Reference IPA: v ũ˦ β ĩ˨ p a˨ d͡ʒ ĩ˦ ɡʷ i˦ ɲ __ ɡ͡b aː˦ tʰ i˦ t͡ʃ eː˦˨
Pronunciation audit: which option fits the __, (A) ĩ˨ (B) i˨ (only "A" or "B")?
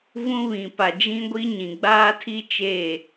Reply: A